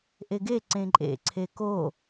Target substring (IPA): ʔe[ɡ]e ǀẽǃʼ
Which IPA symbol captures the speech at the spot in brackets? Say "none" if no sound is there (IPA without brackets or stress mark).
ɡ